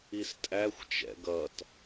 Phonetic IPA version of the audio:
i s tʼ æ xʷ t͡ʃ ɛ̰ ɡ ʌ t

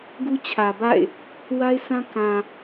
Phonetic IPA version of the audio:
ɡ u˦ t͡ɕʰ ä˨ b a̰˦˨ ɪ̯ | w a˦ ɪ̯ sʰ ã˦ k ã˨

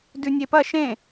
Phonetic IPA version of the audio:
d ʉ nʲ e p ɐ ʃ ẽ

